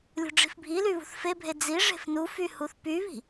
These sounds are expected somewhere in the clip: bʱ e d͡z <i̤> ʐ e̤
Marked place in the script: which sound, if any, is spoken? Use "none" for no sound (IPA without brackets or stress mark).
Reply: i